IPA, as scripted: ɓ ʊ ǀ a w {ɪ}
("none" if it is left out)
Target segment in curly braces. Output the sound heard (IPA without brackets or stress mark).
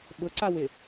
ɪ